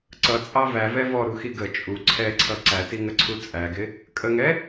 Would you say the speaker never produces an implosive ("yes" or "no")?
yes